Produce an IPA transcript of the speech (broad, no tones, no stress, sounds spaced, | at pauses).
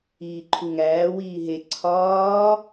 iː ǃʰ u ŋ æː w iː ɦ e ǀʰ ɒː